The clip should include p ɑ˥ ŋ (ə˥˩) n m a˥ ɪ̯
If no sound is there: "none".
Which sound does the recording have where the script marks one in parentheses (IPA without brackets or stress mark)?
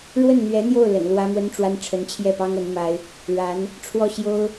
ə˧˥